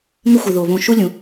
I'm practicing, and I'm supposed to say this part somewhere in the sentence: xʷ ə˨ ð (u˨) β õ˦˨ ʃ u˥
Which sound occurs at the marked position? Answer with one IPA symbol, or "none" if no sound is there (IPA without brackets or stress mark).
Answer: o˨